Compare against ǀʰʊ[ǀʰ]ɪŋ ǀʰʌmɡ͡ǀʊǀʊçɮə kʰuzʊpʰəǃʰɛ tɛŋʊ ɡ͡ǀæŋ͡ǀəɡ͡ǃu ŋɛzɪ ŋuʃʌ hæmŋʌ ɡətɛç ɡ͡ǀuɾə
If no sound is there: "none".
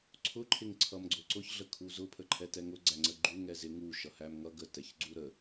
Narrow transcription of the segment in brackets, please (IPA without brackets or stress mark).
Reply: ǃʰ